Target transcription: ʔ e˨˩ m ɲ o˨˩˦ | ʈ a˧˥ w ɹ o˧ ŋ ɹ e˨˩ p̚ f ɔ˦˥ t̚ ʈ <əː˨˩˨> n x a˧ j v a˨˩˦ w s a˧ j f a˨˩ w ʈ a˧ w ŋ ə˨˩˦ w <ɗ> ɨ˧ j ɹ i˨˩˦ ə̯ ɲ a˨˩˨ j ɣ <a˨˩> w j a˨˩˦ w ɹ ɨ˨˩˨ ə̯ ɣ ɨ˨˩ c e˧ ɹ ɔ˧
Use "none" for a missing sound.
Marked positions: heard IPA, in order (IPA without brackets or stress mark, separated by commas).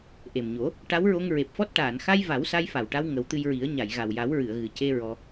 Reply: aː˨˩˨, t̪, a˨˩